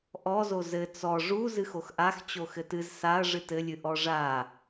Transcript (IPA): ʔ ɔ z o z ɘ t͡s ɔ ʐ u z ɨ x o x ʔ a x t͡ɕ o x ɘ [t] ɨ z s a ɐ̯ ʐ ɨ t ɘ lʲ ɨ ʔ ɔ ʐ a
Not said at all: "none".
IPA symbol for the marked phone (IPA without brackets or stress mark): t